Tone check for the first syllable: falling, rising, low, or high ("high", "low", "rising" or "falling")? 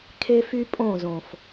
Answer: high